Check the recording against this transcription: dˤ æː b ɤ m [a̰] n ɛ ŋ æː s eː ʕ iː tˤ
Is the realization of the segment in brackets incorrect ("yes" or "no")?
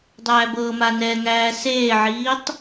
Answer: yes